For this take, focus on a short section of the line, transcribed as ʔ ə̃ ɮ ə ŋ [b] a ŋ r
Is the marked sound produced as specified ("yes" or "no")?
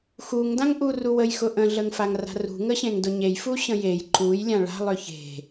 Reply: no